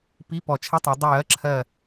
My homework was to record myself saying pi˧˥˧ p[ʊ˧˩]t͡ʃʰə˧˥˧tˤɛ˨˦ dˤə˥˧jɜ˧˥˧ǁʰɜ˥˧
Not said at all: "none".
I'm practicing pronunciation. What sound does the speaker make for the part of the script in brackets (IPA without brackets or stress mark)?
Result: ɔ˧˩